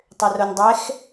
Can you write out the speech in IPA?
tˤʏronʲdˤɛx

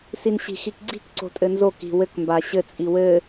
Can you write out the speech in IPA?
sinɕi̤xikɡ͡ǀi̤k ǀo̤tʼɘnzo ki̤ wɘk mbaɕɘ t͡sʼiwɘ

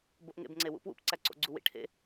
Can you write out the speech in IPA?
boʔŋḛbŋ͡ǀewṵ pwṵpǀæǀo̰ɡ͡ǀu wḭʈʰḛ

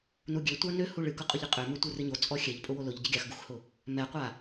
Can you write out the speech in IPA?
nuɡʲøtʷa nøhu ɭɨkʊqʼʊʎɨ qʼø møtʷɨrɨɲo t͡sʼɔxʲɛʎ pʼʊwolʊʎɟɨ ɡʲaxɡuxhʊ | mɛqʷa

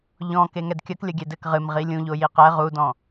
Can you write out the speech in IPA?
ʎɔ̃ keŋɛdkʲɐk lʲɐɡʲɛdɘk ʁɨmʁi lʲũʎo jiqɛ ʁudɔ̃

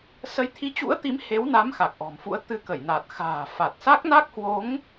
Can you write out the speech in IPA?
sə˨˦jt̪ʰi˨˦t͡ɕṵ˧˥ə̯t̪i˨˦m he˨˦wna˨˦m xa˨˩k̚ʔɔ̤˨˩mfṵ˧˥ə̯ t̪ɨ˧kə˧˩jna˨˩t̚ xa̤ː˨˩fa˨˩t̚ sa˦˥k̚na˦˥k̚hwo˨˦ŋ

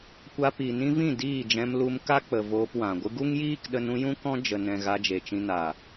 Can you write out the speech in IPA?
kʷa˧pi˨ nĩ˧vĩ˦˨ diː˦˨d͡ʒɛ̃˧m lu˧mka˦ k͡pə˨ voː˧pwã˨ɡʷɨ˦ ɡu˦ŋjiː˦kɗə˧nũ˧ jũ˦kɔ̃˦ d͡ʒə˨nɛ̃˨ ɣa˧d͡ʒe˨t͡ʃĩ˧ na˨

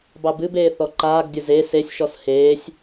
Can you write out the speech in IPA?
bɑbɨbeː θɔǃaːɡdʲə ze sesʲʃɔs heːsʲ

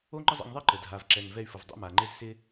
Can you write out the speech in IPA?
o˥ ŋ͡ǃə˥zˤɛ̰˧ŋðˤe˥ ǃə˩ dʱa˩vǁɛ˩ŋ vɛ˧y̯fə˩v dˤɛ̰˧ma˩ŋ͡ǃe˧z sɪ˧

